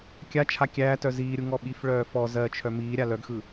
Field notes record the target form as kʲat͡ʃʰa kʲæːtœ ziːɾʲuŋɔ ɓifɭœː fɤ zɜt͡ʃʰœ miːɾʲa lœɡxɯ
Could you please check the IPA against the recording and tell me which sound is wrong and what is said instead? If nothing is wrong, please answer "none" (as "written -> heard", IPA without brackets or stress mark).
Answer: ɤ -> ɔ